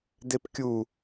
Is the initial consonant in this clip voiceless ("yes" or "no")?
no